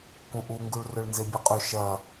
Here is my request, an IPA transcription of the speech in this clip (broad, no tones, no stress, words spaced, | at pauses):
kũʔuŋɡuɭ rɵɭnzebʲɐqʼʉ ʃɐ